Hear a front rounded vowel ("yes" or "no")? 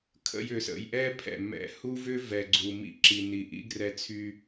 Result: yes